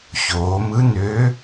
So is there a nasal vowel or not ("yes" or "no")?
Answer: no